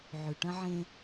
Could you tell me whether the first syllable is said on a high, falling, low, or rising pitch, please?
low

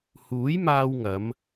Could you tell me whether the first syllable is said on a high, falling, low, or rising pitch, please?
rising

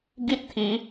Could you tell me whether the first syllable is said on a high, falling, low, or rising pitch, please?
high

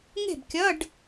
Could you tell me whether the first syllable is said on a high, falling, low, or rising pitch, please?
falling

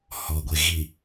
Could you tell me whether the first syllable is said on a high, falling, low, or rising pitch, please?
low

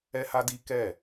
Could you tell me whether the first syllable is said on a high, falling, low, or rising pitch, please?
high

